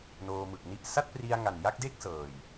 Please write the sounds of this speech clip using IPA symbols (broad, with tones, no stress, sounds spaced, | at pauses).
n oː˧ m ɯ˨˩ k̚ n i˥˩ ʔ s a˥˩ t̚ p r i˧ a̯ ŋ a˨˩ n j a˥˩ k̚ d e˥˩ k̚ s ɤː˨˩ j